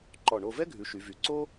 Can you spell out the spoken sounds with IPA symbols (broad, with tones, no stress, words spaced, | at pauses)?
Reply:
ǃɔ˧˩ɳo˥˧ vɛ˥ɡʱʉ˩˧ ʃy˩˧vy˩˧ ǀo˥